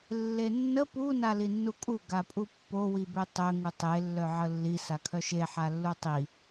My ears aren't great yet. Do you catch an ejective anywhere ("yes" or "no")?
yes